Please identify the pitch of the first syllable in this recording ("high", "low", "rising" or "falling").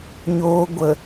low